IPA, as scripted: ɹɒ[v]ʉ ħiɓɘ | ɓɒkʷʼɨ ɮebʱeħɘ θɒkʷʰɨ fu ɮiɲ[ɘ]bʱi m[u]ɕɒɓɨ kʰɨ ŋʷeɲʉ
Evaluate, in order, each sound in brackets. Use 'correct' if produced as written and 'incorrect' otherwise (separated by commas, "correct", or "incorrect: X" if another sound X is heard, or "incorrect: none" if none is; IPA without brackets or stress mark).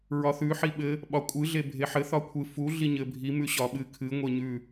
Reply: incorrect: θ, correct, incorrect: ʉ